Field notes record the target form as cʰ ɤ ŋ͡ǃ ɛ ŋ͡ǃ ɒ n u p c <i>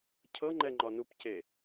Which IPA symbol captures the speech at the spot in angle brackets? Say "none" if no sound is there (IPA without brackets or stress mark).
e